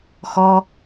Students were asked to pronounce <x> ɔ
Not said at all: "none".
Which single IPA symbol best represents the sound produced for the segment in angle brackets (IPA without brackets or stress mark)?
x